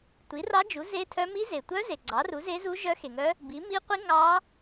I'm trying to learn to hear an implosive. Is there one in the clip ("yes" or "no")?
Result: no